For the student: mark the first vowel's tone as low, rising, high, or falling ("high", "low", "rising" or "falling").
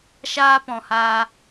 high